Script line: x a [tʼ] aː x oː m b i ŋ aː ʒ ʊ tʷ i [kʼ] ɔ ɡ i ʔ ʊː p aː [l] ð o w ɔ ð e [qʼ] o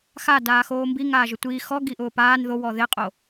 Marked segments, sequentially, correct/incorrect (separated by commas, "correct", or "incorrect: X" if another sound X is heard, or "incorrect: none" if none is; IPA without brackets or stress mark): incorrect: d, incorrect: x, incorrect: n, correct